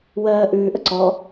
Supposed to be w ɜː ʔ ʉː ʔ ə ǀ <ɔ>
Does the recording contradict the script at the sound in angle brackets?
no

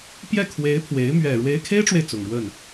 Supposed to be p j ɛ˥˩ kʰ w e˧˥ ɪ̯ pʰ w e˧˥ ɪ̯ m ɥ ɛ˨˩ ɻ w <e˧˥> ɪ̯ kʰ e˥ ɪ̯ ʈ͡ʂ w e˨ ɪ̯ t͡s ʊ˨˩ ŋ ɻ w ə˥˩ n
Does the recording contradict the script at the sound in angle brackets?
no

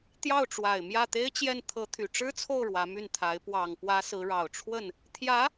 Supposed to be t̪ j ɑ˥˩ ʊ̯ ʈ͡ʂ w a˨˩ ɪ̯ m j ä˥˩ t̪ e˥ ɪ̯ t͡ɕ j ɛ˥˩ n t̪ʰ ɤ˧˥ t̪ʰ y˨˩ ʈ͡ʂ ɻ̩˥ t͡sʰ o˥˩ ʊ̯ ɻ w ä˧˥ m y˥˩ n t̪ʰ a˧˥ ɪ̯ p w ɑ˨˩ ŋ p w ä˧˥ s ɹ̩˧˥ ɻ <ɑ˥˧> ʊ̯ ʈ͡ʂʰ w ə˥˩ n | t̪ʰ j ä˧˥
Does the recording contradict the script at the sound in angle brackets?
yes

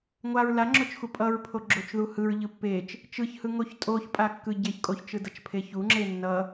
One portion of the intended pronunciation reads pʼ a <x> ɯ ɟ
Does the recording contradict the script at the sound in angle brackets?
yes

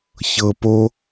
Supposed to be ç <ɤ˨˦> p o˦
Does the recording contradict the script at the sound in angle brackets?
yes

